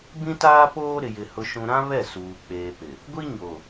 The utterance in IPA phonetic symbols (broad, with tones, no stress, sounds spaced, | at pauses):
b ĩ˦ t aː˦ p oː˦ ɾ ɪ˨ j ɪ˨ h ʊ˨ ʃ ũ˨ ɾ ã˦ β ɛ˦˨ s uː˨ k͡p eː˨ p ɪ˨ | ɡʷ i˦ ɲ o˨